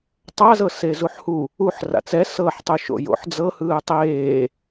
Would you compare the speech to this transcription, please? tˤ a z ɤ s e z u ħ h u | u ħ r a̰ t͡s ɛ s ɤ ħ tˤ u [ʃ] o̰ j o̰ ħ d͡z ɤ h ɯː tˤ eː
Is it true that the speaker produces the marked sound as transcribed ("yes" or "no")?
yes